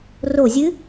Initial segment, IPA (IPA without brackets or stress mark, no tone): r